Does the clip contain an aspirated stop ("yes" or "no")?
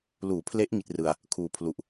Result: yes